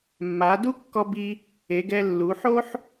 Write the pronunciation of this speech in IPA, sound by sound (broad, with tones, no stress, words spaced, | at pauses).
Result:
mːa˩˧du˥kːɔ˧ bi˧ | e˩˧ɡɛ˧lːu˩˧ ħo˥ħ